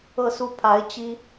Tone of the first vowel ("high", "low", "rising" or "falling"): falling